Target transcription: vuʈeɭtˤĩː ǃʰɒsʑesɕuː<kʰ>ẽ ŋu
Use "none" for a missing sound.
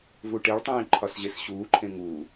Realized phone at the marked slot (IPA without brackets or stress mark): ǃʰ